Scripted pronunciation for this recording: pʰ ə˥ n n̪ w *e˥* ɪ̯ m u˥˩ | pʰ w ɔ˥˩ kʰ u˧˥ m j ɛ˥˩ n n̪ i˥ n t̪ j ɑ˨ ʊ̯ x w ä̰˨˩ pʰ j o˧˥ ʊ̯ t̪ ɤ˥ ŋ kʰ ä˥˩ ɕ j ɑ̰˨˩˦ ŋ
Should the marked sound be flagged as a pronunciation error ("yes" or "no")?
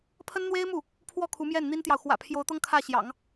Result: no